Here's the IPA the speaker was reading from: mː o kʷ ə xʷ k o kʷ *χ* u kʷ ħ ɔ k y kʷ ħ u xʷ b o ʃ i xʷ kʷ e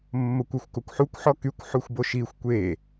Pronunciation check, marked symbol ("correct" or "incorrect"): incorrect